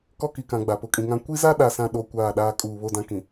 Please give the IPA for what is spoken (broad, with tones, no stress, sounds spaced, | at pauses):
k ɔ˦ k i˨ k ã˨ ɡ͡b a˨ p ʊ˨ kʼ ĩ˨ ŋ ã˦ kʷ i˦ z a˦ ɗ a˨ s ã˨ ɗ o˦ kʷ aː˦˨ ɗ aː˦ kʼ uː˨ β o˦ d ã˦ k ĩ˨